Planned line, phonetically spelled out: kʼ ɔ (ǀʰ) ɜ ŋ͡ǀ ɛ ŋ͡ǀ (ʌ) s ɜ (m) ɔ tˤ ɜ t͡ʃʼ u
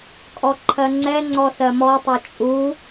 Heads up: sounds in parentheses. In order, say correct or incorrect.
incorrect: ǃʰ, incorrect: ɔ, correct

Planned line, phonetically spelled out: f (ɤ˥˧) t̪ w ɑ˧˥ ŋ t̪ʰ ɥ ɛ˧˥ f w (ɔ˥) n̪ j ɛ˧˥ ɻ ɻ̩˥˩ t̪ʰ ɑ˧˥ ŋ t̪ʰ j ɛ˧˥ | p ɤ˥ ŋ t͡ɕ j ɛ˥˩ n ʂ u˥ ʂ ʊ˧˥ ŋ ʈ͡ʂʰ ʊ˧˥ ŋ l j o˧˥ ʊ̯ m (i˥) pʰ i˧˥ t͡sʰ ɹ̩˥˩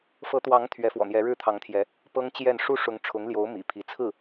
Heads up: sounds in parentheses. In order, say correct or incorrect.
incorrect: ɤ˧˥, incorrect: ɔ̰˨˩, incorrect: ḭ˨˩

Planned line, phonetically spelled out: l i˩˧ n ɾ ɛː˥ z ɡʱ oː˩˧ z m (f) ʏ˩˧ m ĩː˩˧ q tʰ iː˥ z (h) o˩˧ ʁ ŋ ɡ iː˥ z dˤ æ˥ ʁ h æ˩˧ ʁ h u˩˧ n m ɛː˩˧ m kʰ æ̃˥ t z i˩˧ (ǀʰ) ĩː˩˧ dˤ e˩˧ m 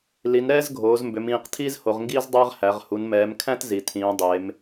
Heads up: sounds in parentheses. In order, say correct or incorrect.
incorrect: b, correct, incorrect: tʰ

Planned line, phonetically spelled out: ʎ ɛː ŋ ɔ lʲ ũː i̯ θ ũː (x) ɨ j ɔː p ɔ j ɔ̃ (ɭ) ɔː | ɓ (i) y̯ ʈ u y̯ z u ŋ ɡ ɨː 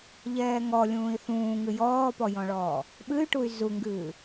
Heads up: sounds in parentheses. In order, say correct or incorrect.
incorrect: ŋ, correct, incorrect: ɨ

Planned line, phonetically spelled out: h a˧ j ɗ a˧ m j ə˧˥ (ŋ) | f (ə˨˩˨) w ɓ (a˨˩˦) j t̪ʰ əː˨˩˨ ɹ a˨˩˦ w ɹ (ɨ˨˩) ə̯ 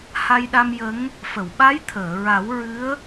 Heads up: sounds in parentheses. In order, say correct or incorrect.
correct, correct, incorrect: a˧˥, incorrect: ɨ˧˥

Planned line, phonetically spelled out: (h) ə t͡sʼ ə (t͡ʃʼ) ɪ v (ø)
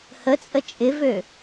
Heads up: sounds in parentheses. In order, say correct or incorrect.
correct, correct, correct

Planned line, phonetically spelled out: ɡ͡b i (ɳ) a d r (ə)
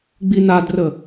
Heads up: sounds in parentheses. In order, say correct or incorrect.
incorrect: n, correct

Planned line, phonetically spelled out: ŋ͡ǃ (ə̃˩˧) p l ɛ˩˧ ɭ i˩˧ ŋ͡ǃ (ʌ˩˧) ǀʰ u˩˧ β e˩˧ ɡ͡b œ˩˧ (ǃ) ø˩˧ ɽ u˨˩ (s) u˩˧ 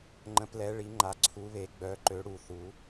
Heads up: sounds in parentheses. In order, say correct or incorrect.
correct, incorrect: a˩˧, correct, incorrect: θ

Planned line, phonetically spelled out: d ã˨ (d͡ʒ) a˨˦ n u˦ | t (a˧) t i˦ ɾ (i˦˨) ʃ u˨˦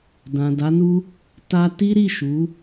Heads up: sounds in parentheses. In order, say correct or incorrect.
incorrect: d, incorrect: a˦, correct

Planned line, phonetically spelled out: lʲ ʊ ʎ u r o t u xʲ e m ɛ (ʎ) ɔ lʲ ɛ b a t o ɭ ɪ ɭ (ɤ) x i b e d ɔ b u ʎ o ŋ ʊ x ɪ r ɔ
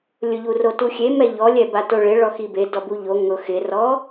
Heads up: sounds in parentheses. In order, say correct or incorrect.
correct, incorrect: ɔ

